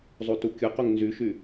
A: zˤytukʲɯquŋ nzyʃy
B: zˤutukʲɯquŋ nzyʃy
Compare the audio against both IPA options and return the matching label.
B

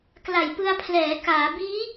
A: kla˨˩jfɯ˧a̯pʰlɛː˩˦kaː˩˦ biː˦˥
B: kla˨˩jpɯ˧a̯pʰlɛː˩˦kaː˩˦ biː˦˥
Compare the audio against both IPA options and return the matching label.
B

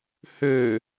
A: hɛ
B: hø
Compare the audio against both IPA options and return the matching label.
B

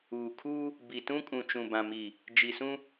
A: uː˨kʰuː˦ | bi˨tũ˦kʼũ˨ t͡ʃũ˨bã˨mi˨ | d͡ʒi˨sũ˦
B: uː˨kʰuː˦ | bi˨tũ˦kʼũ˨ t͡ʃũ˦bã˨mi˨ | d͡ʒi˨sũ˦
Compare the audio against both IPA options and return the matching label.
A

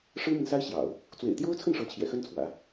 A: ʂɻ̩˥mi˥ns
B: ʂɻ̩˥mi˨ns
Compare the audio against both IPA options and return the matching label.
B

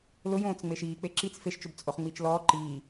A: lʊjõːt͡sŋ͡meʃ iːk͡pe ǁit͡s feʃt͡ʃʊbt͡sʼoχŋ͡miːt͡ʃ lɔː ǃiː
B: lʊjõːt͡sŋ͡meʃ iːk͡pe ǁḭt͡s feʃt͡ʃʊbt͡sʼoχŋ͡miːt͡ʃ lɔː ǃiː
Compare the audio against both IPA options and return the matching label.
A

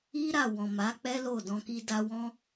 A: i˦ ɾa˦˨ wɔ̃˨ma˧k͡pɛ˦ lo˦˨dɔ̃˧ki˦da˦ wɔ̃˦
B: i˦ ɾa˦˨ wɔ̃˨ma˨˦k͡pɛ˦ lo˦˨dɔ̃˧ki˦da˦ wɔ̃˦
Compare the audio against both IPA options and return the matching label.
B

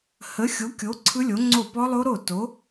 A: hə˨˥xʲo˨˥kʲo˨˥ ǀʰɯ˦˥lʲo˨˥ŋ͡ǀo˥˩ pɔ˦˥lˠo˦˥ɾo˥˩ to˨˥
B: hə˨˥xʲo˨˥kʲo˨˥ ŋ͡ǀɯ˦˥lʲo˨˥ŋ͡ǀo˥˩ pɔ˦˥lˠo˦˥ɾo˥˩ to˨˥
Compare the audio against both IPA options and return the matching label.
A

